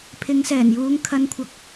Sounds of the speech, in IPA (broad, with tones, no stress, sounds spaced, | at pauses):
pʰ ɪ˨˧ ŋ s ɛː˨˩ n j uː˨˧ ŋ kʰ ɐ˧ n kʷʰ ɐ˨˥ k̚